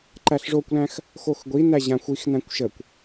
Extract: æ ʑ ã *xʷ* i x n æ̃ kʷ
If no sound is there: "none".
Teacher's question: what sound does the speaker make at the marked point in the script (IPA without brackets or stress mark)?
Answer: xʷ